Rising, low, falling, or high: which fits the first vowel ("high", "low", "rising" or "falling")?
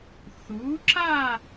rising